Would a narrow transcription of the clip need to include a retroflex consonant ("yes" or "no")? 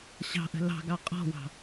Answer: no